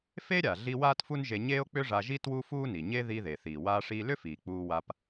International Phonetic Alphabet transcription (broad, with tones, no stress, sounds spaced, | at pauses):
f e˥ ɾʲ a˩ ɮ i˥ w aː˥ t f u˥ n ʒ e˧ ɲ eː˥ o̯ k͡p ʏ˥ ʐ a˧ ʒ i˥ t w u˥ f uː˥ n i˩ ɲ e˥ ð i˧ ð e˩ θ iː˩ w aː˧ ʂ iː˧ l ʏ˥ f iː˩ k͡p uː˧ w a˧ p